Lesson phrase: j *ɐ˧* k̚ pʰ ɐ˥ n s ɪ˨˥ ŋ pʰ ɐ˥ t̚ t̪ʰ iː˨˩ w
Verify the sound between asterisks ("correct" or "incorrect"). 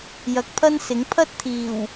incorrect